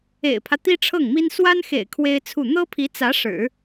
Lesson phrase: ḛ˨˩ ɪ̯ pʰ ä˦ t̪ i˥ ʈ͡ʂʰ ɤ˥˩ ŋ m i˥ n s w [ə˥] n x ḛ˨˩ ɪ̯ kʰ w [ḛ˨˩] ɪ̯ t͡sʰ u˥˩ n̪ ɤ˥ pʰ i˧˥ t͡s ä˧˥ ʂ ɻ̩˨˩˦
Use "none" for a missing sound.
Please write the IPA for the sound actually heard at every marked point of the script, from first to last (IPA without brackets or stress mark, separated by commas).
a˥, e˥